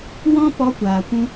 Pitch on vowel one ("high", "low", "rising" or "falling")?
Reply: high